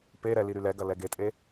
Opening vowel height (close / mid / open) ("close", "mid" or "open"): mid